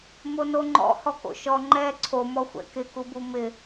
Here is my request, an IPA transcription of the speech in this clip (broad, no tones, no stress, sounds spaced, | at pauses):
m o n o ŋ͡ǃ ɔ̰ h ɔ k o̰ ʃ ɔ ŋ͡ǃ ɛ ǀʰ o m ɔ xʷ ɛ̰ k ɪ k u b u m ɪ